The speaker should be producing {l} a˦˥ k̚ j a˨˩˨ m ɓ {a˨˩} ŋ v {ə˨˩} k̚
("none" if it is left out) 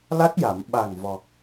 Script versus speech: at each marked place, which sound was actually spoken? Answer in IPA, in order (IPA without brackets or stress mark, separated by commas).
l, a˨˩, ɔ˨˩